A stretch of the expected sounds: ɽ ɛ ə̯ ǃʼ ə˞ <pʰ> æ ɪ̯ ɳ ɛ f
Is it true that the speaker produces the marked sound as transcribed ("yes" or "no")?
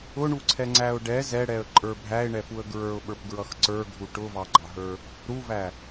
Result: no